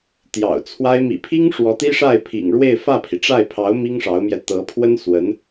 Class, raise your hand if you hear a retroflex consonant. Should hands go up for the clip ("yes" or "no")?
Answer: yes